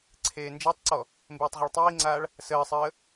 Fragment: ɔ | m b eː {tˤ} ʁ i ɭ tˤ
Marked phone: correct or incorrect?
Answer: correct